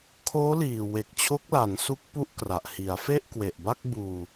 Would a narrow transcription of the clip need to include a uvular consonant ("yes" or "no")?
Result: no